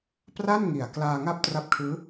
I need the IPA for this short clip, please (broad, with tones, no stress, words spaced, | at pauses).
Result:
pra˥˩n ŋi˨˩a̯ klaː˧ŋa˦˥p̚ tra˦˥p̚kʰɯː˦˥